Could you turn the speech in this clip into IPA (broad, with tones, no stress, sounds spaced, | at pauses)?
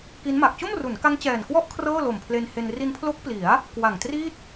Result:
k i˦˥ n m a˨˩ k̚ t͡ɕ o˥˩ m r u˩˦ n k a˦˥ ŋ t͡ɕ ɛː˨˩ n k w ɔ˥˩ ʔ kʰ r ɤː˥˩ l o˨˩ m pʰ l e˧ n h e˧ n r i˧ n pʰ l o˦˥ k̚ p l i˩˦ a̯ | k w a˨˩ ŋ t r i˥˩ t̚